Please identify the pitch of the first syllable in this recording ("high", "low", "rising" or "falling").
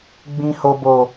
low